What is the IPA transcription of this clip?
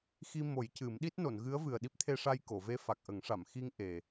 x i˧ m o˨˩˦ j c ɨ˨˩˦ m ɗ i˦˥ t̚ n o˨˩˨ n ɣ ɨ˧˥ ə̯ v ɨ˨˩ ə̯ ɗ i˦˥ p̚ t̪ʰ e˧ ʂ a˧ j k o˨˩˨ v e˧ f a˨˩ k̚ ʔ ə˨˩˦ ŋ ʂ a˨˩˨ m x i˧ ŋ ʔ e˨˩

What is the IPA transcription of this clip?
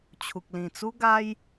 t͡ɕʰ u˨ k̚ l ĩ˨˩ t͡s u˦ ɡ a˦ j

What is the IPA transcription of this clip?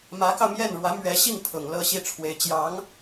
m ä˧˥ k ɑ˧ ʊ̯ m j ɛ˥˩ n ɻ w ä˧˥ m ɥ ɛ˧˥ ɕ i˥˩ ŋ pʰ ʊ˨˩ ŋ l ɤ˥˧ ɕ i˥˩ ʈ͡ʂʰ w e˧˥ ɪ̯ t͡ɕ j ɑ˧˥ ŋ

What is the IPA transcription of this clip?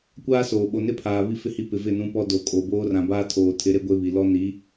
kʷ aː˦ s oː˨ ɓ o˨ n ɪ˦ pʰ aː˨ β i˦ f ɪ˦˨ h i˦ p ɪ˨ v ɪ˦˨ n ũ˦ p ɔ˦ d o˨ kʼ o˨ b oː˦ r ã˨ b aː˦ tʰ oː˨ tʰ ɪ˨˦ ɾ e˦ ɡʷ e˦ β i˨ l ɔ˦ n i˨˦

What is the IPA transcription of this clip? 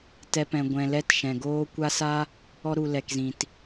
t ɛ˧ p ɛ̃˨ ɡʷ ɛ̃˨ l ɛ˦ t ʃ ɛ̃˨ ɡ oː˦ kʷ a˦ s a˦ | ɔ˧ ɾ u˨ l ɛ˨ k z ĩ˨ t

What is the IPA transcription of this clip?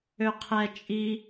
ø qʰ ɛ t͡ʃʼ i

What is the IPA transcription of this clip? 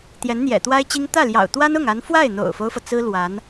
t̪ j ɛ˧˥ n n̪ j ɛ̰˨˩ t̪ w a˥ ɪ̯ t͡ɕ i˥ ŋ t̪ ä˥˩ l j ɑ̰˨˩ ʊ̯ t̪ w a˥ n ʊ˥˩ ŋ a˧˥ n f w a˥˩ ɪ̯ n̪ o̰˨˩ ʊ̯ f o˦ ʊ̯ f ɤ˩ t͡s ɹ̩˥ l w a˧˥ n

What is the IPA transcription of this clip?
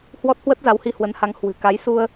h w ɔ˦˥ t̚ h w ə˦˥ t̚ z a˨˦ w h i˧ h w ə˨˦ n h a˨˦ ŋ h w ɨ̤˨˩ k a˨˦ j s u˧ ə̯

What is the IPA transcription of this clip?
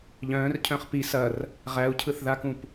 ʎ œ̃ː r cʰ œ̃ χ p i s ɐ r | ʁ æ u̯ cʰ ɯ θ ð a k ũ p

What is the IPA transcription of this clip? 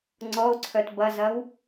ŋ͡ǀ ɔ o̯ ǀʰ œ t b ɐ z ɐ w

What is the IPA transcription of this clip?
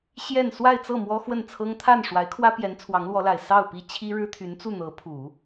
ɕ j ɛ˥˧ n s w a˥˧ ɪ̯ t͡s ɤ˥˩ m w ɔ˥ x w ə˥˩ n t͡sʰ ɤ˥ ŋ t̪ʰ a˥˩ n ʂ w a˧˥ ɪ̯ kʰ w ä˥ p j ɛ˧˥ n t͡sʰ w ɑ˧˥ ŋ l w ɔ˧˥ l a˨˩ ɪ̯ s ɑ˥˩ ʊ̯ p i˥ t͡ɕʰ i˥ ɻ ɻ̩˥ t̪ʰ y˧˥ n t͡s u˥˩ n̪ ɤ˧˥ pʰ u˨˩˦

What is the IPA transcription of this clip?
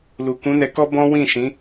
l u˨ k ũ˨˦ n ɛ˧ k ɔ˦ b ɔ̃˦ w ĩ˦˨ ʃ ĩ˨˦

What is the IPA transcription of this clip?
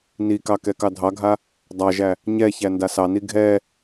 n i k ɑ k ɛ k ɑ dʱ ɑ ɡʱ a | dˤ a ʒ æ | ɲ ɛ ç æ n d a s ɑ n i ɡʱ ɛ

